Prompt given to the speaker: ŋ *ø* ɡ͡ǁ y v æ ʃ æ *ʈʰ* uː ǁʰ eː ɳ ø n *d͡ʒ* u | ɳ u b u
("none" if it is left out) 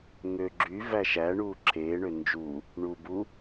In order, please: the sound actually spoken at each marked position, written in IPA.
ø, ɳ, d͡ʒ

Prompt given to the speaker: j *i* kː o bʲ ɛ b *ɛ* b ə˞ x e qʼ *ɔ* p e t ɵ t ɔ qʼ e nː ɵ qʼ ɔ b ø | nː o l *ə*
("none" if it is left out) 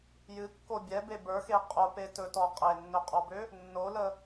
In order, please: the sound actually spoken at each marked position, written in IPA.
ɨ, e, o, ə

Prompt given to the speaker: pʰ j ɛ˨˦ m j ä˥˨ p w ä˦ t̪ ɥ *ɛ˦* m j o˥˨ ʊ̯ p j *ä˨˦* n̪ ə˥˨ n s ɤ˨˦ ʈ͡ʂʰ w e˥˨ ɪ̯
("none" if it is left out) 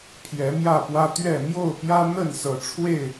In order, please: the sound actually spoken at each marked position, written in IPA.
ɛ˥˨, ä˦

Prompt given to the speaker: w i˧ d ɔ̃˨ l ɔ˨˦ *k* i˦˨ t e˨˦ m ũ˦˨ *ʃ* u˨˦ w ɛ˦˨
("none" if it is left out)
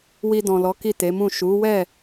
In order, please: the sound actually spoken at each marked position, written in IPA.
k, ʃ

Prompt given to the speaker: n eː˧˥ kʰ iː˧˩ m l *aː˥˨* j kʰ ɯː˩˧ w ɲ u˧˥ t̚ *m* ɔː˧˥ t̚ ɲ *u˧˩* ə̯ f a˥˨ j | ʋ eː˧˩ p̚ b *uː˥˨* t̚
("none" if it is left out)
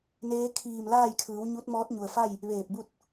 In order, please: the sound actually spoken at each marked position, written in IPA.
aː˥˨, m, u˩, u˥˨

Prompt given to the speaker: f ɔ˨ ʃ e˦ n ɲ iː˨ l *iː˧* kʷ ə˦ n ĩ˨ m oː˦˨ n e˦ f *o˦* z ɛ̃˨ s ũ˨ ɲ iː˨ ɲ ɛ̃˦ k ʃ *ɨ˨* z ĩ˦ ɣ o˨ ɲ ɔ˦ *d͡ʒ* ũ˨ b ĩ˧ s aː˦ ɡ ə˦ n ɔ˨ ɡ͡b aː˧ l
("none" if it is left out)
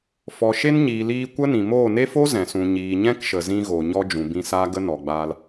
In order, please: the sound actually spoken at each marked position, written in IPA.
iː˧, o˦, ə˨, d͡ʒ

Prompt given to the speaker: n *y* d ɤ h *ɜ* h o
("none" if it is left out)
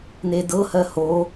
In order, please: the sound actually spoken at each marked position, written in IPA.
e, ɜ

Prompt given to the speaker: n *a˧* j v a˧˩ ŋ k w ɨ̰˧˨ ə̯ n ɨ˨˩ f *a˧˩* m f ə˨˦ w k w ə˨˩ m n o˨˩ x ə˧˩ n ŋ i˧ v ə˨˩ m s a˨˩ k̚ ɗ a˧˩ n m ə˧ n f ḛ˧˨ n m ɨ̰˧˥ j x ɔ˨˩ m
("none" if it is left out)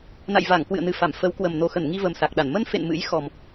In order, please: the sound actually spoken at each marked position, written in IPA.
a̰˧˨, a˧˩

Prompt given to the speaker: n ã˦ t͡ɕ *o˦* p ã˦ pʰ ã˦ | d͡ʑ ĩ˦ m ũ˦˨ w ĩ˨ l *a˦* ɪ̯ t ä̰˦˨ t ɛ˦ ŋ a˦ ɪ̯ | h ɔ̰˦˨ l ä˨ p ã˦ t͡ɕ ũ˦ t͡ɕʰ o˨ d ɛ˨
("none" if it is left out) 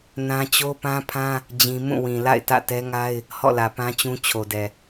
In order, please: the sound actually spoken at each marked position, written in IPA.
o˦, a̰˦˨

